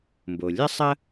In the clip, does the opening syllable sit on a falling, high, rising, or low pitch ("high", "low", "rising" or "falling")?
low